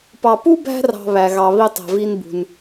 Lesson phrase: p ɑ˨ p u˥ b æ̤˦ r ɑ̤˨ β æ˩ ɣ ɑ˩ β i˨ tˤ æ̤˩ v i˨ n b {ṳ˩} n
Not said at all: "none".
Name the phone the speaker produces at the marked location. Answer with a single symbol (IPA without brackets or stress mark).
ṳ˩